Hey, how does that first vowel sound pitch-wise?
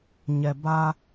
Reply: low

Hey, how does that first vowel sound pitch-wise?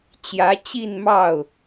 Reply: rising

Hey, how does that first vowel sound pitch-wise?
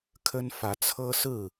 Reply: high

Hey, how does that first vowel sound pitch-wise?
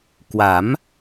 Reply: rising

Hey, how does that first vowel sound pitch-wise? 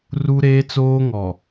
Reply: high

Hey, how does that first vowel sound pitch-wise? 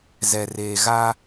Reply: low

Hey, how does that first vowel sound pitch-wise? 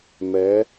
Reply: rising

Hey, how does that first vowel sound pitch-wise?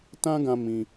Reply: high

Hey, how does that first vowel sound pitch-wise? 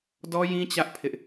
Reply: high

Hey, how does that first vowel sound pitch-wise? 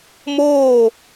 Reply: falling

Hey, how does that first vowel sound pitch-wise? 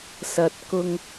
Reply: low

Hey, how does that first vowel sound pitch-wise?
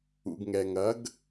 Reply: low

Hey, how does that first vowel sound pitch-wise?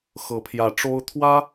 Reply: rising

